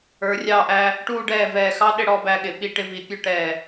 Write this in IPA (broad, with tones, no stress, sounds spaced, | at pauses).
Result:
ə˞˩˧ rʲ ɑ˧˩ ʔ æ˧ | ʈ uː˧ ɖ ɛː˧˩ v ɛː˧˩ x ɑ˥ ɗ ɪ˧ ɽ ɔ˥˧ b æ˧ ɠ ɪ˩˧ ɓ i˧˩ ʈ ɪ˧ v i˩˧ pʲ ʊ˧ ʈ ɛː˧˩